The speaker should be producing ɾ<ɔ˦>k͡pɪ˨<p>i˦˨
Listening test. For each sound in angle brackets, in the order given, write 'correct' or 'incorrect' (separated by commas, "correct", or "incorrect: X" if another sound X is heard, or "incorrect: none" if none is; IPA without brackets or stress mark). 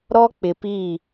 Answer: correct, correct